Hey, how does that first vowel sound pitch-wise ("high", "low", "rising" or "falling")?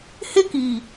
high